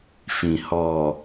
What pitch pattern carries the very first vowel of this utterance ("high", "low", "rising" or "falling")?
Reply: low